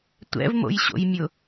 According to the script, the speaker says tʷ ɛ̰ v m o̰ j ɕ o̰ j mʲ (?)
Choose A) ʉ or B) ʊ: B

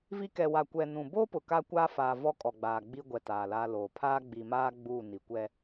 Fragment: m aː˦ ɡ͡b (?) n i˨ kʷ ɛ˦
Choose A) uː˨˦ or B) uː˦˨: B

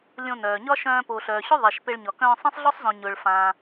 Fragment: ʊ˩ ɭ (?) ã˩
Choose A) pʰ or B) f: B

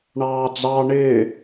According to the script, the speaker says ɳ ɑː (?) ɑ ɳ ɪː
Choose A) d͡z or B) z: A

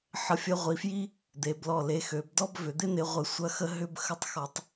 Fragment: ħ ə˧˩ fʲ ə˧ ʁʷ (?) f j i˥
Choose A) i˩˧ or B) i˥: A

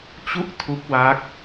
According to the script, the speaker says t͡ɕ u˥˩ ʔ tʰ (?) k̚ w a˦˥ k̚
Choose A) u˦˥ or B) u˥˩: A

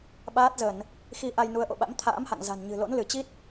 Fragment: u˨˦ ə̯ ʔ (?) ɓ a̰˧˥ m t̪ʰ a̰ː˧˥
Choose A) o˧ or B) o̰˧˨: B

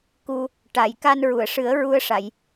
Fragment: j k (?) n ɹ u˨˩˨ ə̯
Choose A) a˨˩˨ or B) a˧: B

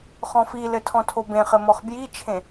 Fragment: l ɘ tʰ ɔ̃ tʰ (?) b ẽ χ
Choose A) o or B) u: A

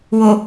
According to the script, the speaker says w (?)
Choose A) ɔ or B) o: B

